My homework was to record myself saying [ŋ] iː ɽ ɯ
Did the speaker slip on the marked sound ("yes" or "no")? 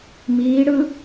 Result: yes